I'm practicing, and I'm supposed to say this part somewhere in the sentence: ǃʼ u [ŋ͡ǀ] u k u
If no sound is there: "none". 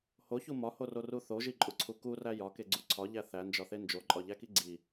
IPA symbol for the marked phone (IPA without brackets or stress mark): ǀʰ